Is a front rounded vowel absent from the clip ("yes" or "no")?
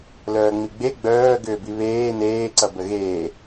no